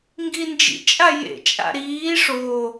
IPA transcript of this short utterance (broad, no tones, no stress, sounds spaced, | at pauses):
ŋ ɡ i n d͡ʒ ḭ t͡ʃʼ a j ḛ t͡ʃʼ a̰ ɾ iː ʂ o